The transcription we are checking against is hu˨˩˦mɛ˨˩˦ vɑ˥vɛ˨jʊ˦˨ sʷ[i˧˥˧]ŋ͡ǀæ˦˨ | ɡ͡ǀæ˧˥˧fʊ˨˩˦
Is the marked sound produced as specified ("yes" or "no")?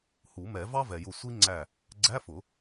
no